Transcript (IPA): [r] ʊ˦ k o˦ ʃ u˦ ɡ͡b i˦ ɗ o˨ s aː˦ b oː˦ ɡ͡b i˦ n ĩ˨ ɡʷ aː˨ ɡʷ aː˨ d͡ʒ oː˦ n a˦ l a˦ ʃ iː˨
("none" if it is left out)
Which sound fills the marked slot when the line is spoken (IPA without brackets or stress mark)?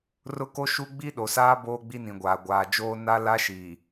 r